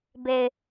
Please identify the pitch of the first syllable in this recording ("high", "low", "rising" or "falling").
low